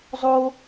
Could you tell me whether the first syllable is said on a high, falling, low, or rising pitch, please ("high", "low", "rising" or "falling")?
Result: high